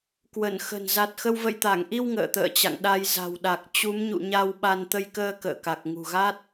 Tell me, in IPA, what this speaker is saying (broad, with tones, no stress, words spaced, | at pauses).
kwə˧˩n xə̤˨˩n za˨˩t̚xə˧w və̰˧˨jt̪a˧˩ŋʔi˧w ŋə̰ː˧˨t̪ə̰ː˧˨t͡ɕa̰˧˨ŋ ɗa˧jza̤˨˩w ɗa˨˩k̚ t͡ɕu˨˦mɲṵ˧˨ɲa˧w ɓa˧n t̪ə˧jkəː˧ kə̰ː˧˨ka˨˩k̚ ŋṳ˨˩ɣa˦˥t̚